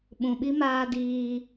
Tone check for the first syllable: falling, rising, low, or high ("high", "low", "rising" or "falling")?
low